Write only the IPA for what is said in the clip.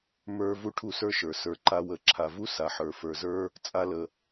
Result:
m ə˞˦ v u˦ ʈʰ u˦˨ s ə˞˦ ʃ ə˞˨ s ə˞˨ ǃ a˧ w ə˨˦ ǁʰ a˨ v u˦ s a˨ ħ ə˞˨ f ə˞˨ z ə˞˦ | t͡sʼ a˦ l ə˧

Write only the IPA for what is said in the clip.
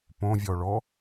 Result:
p õ vʲ ɔ ɭ ɔ

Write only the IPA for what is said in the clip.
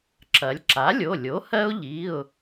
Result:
ǁ ɐ˩˧ lʲ ǁ a˩˥ lʲ o˩˧˩ lʲ o˩˥ h ɜ˦ ʊ̯ ʎ i˩˧˩ ʊ̯

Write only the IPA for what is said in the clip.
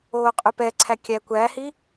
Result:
oː qʼ ʉ p ɛ ǀʰ æ kʲ æ kʷ æ h i

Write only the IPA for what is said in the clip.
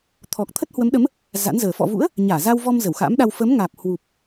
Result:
t̪ʰ ɔ˨˩ k̚ t̪ʰ ə˦˥ t̚ h w ə˨˦ m ɗ ə˨˦ m | z a̰˧˥ n z əː˨˩ f ɔ̰˧˨ v ṵ˧˥ ə̯ | ɲ aː˧˩ z a˧ w v ɔ˧ m z ə˧˩ w x a̰˧˥ m ɗ a˧ w f ə˨˦ m ŋ aː˨˩ p̚ h w u˨˩ p̚

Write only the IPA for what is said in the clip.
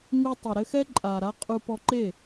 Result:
ŋ u˧ tˤ i˨ ɾ ɘ˧ x ɛ˦ ǃʼ a˨ ɾ a˧ qʼ u˧ p ɔ˧ ǃ e˦˨

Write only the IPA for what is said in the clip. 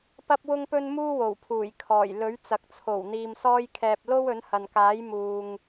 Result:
p ɐ˥ p̚ w ʊ˥ ŋ p ɵ˥ n m uː˥ w o˨˩ w pʰ uː˨˩ j kʰ ɔː˨˩ j l ɵ˨˥ ɥ t͡s ɐ˨ k̚ t͡sʰ o˨˩ w n̪ iː˨ m s ɔː˧ j kʰ ɛː˨ p̚ l o˥ w ɵ˨˥ n h ɐ˨ n k aː˨˥ j m uː˨ ŋ

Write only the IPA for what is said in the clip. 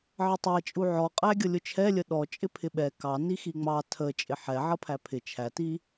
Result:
ʕ ə tˤ æ t͡ʃʼ u ʕ ɔ qʼ æ ɡʲ ʌ lʲ ʊ t͡ʃʰ ɛ lʲ ə ɗ ɔ t͡ʃʼ ɪ pʰ ɪ ɓ ɛ k ɑ n i x i ŋ͡m ɑ tʰ ə t͡ʃʼ ɪ ħ ɛ ʕ ʌ pʰ æ pʰ ɪ t͡ʃʰ æ t i

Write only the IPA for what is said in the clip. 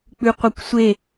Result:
k͡p ʉ qʷ œ kʷ sʷ e

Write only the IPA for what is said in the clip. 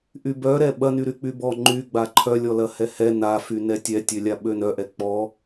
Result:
ʔ y b œ ɾ ɛ ɓ ɐ n y ɾ y k͡p y b ɔ ŋ͡ǃ y ɡ͡b a ǃʰ œ lʲ ɔ l ɐ h ɛ h ɛ n a f y n ɛ tʲ ɛ tʲ ø lʲ a ɓ ø n œ ʔ ɛ k͡p ɔ

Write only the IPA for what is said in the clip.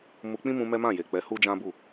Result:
m u˧ k͡p ĩ˦ m ũ˧ m ɛ˦ m ã˦˨ j e˨ k͡p ɛ˨˦ h u˦ d͡ʒ ã˦ b u˦˨

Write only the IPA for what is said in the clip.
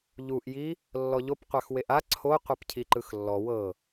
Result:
ʎ u ʔ j i | lː ɔ ʎ o p qʷ a x w e ʔ a ǀʰ o qʷ e p cʰ i ǃ ɯ x lː ɔ w ɤ

